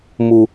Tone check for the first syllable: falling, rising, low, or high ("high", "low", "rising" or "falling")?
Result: low